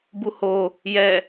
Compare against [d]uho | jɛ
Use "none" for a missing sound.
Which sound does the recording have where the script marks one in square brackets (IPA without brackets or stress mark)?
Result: b